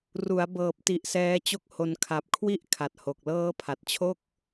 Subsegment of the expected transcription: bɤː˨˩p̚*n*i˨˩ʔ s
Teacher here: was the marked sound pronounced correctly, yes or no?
no